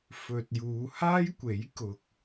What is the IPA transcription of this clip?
f ɵ˨ t̚ j uː˨˧ h aː˥ j kʷ e˨˥ j k ʊ˨ k̚

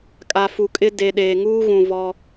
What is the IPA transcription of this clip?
kʼ a˨ f u˨ kʼ ɪ˦ d e˨ ɗ eː˨ ŋ uː˦ ɣ ũ˨ v ɔ˦

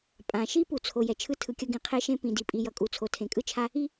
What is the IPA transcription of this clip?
pʼ ã˩ ʃ i˥ p u˩ t͡sʰ o˩ j ɛ˩ t͡ʃʰ ɯ˥ tʰ ɯ˩ kʲ ʌ˥ ɡ ĩ˩ qʰ e˥ ʃ ẽ˥ p ĩ˩ d i˩ pʼ i˩ j ʌ˩ kʼ u˩ t͡sʰ o˩ tʰ ẽ˩ kʼ ɯ˥ t͡ʃʰ a˥ | i˥

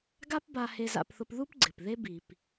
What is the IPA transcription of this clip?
ɡ a˥ p b a˧ h e˧ z a̰˧ p θ ʊ˧ p ð u˥ p ɡ͡ǀ ɪ˩ p ð e˧ b i˩ p

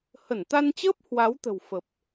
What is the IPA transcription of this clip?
h ə˧˩ n t̪ a˧ n t͡ɕ əː˦˥ p̚ h w a˨˦ w t̪ ə̤˨˩ w f ə˨˩ p̚

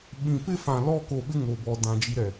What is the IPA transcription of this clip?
ɓ ĩ˨ p ɪ˦ f ã˨ l ɔ˦ k o˨ ɓ ɪ˦ ŋ o˨ b ɔ˨ d ã˨ d͡ʒ i˦ ɾ ɛ˨

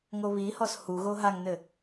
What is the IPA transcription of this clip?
ŋ o β i h ɔ s h u ɣ o ɦ a ŋ n ɘ

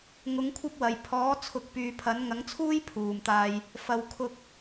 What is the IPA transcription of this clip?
ŋ ʊ˨˧ ŋ kʷʰ ɐ˥ p̚ w ɐ˨˩ j pʰ ɔː˨˥ t͡sʰ ʊ˨˥ k̚ p yː˨ pʰ ɐ˨˥ n ŋ ɐ˨˥ ŋ t͡sʰ uː˥ j pʰ uː˨˩ m t̪ aː˧ j | f ɐ˨ w kʰ ʊ˧ k̚

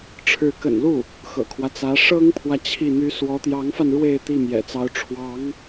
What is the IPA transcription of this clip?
ʈ͡ʂʰ ɻ̩˧˥ k ə̰˨˩ n l u˥˩ | x ɤ̰˨˩ kʰ w ä˦ t͡s ä˧˥ ʂ ɤ˥ ŋ pʰ w ä˨ t͡ɕʰ i˥˩ n̪ y˥ s w ɔ˧˥ t̪ j ɑ˧˥ ŋ f a˧ n ɻ w e˥˧ ɪ̯ t̪ i˥˩ m j ɛ̰˨˩ t͡s ɑ˧˥ ʊ̯ ʈ͡ʂʰ w ɑ˧˥ ŋ

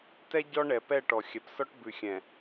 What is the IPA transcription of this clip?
t ɛ˦ ɟ ɔ˦ ɳ ɛ˨ p ɛ˦˨ ʈ ɔ˨ xʲ ɛ˨ p s ɔ˦ ʈ b ʉ˨ xʲ ɛ̃˨

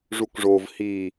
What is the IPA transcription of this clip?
ʐ u k ʐ oː v h iː

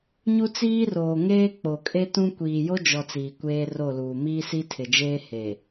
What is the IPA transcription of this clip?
ɲ u˦ t͡s iː˦ r oː˨ ŋ eː˦ k͡p o˨ kʼ e˦ t ũ˦ kʷ iː˨ j o˦ d͡ʒ ɔ˨ t͡s iː˨ kʷ eː˦ r o˦˨ l uː˨ m iː˦ s i˦ tʰ ɪ˨ d͡ʒ eː˦ h e˨

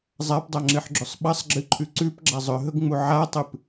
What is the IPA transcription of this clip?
zˤ a p dˤ a ŋ͡ǁ ɨ ħ ɡ͡ǁ ɵ sˤ ɓ ɐ sˤ ɡ͡ǁ ɨ ǃʰ ʉ ǀ ʉ p ɡ͡ǁ a zˤ ɵ ɦ ɵ ɡ ŋ͡m u ʕ a tˤ ɨ p

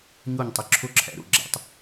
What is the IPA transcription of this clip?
ɲ o˥˩ ɲ tˤ ə˩˥ ǁʰ o˥˩ ǁʰ æ̰˧ ɾ o̰˥˩ ɡ͡ǁ æ̰˩˥ tˤ

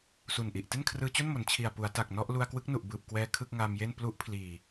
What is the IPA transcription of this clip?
s u˨˩ n ʔ i˨˩ ʔ t e˥˩ n kʰ r ɯː˧ t͡ɕ o˥˩ n m o˩˦ n t͡ɕʰ i˨˩ a̯ p u˩˦ a̯ t a˨˩ k̚ n ɔ˥˩ ʔ l u˧ a̯ k w ɯ˦˥ k̚ n u˨˩ ʔ b ɯː˨˩ p̚ k w ɛː˧ kʰ ɯ˥˩ k̚ ŋ aː˧ m j e˥˩ n p l u˦˥ ʔ pʰ l iː˨˩

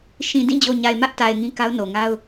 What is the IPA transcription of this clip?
ʃ ĩ˨ d ĩ˦˨ d͡ʑ o˨ ɲ a˨ ɪ̯ m ä˦ ʔ t a˨ ɪ̯ ŋ ĩ˦ k a˦ ʊ̯ n o˨ ŋ a˦ ʊ̯

